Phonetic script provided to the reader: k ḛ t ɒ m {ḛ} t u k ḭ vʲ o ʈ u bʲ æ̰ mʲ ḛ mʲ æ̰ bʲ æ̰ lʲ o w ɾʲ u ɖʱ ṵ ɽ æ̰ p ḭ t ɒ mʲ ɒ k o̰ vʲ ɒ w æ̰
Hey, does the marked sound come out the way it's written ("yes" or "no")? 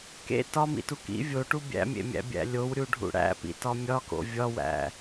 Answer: no